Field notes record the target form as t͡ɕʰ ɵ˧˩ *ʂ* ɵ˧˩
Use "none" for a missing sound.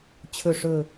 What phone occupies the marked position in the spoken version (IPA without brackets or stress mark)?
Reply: ʂ